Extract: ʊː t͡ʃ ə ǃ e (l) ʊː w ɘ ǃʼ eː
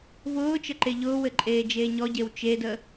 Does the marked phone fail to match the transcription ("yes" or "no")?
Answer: yes